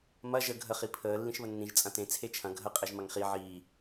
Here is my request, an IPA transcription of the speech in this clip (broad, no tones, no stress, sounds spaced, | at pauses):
m ɐ ʒ ə ɡʱ ə χ i pʰ əː lː ĩ ʃ β ə nː ĩ ʒ t͡sʼ ɐ̃ t ẽ t͡sʰ e t͡ʃʰ ɐ̃ ɡʱ ə qʼ e ʒ m ɐ ŋ χ i ʕ iː